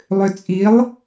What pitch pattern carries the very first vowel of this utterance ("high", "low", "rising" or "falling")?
low